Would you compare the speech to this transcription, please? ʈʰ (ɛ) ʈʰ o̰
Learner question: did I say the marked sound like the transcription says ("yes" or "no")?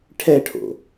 yes